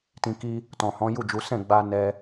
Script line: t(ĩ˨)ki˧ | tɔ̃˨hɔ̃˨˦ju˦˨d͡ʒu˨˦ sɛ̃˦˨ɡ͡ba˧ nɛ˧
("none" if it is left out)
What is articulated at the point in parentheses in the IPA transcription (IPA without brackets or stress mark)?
ĩ˨